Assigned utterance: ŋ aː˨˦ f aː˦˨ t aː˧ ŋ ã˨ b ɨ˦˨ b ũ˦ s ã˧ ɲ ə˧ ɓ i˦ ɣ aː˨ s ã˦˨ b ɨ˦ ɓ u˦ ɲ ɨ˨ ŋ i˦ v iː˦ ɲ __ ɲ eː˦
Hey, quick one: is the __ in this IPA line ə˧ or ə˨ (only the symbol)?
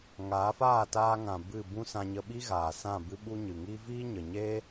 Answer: ə˨